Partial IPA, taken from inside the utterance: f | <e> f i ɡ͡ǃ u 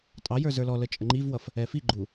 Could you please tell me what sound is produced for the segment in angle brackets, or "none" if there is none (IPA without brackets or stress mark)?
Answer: ɛ